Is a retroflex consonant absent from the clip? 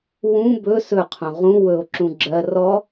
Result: yes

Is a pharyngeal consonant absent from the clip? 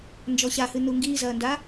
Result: yes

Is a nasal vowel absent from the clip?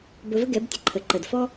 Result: yes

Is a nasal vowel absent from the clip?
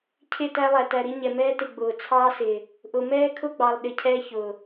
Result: yes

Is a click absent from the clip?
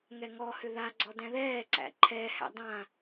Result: no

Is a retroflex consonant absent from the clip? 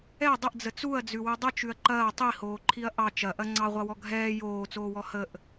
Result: yes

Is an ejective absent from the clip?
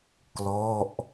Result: yes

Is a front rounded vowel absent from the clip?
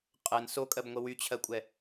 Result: no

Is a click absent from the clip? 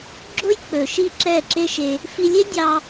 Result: no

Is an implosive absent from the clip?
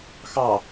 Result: yes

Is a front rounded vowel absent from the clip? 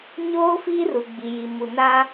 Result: yes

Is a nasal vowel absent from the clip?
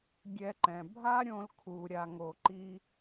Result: no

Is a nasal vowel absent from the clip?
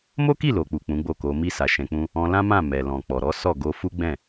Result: no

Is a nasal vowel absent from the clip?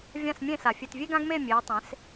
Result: no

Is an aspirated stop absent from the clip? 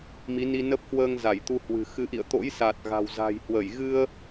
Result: yes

